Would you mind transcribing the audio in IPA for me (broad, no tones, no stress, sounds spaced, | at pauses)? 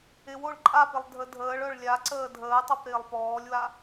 ɪ w o ɭ ǃʼ a p ɪ lˠ dʱ ə dʱ əː ɭ œ ɭ lʲ a ǀ əː dʱ əː tˤ o p ɾ ɪː lˠ p ɔː lʲ w a